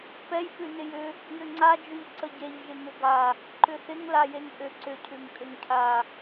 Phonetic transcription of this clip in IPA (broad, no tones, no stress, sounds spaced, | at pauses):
p ɛ j p ʉ n ɪ j ʏ | j ʏ ŋ͡ǀ a d͡ʒ ʉ ʎ ǀ ə ɟ e ʎ ʒ ɪ ŋ ʏ ɡ a | ǃ ʏ θ ɪ ŋ l a j e ŋ ʔ ʏ ǀ ʏ cʰ ʉ ŋ kʼ ʏ ŋ cʰ a